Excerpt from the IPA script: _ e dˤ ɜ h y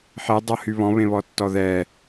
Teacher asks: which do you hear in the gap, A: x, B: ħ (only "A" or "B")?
B